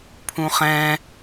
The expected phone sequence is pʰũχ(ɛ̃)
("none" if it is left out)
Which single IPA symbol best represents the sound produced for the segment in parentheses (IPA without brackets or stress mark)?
ɛ̃